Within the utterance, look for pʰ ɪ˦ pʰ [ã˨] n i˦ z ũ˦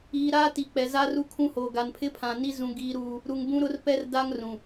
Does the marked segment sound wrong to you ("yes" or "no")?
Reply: no